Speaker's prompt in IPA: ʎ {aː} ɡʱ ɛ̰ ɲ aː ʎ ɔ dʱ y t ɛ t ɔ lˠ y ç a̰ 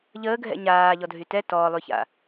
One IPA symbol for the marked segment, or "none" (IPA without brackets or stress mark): əː